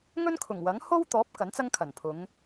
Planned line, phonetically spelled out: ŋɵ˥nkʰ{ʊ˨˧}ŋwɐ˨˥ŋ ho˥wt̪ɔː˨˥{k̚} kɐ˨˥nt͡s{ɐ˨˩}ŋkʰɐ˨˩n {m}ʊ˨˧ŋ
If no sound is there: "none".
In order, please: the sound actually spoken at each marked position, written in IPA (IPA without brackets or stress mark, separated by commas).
ʊ˨˩, p̚, ɐ˥, pʰ